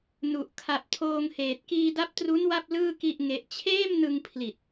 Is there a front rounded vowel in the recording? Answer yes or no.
no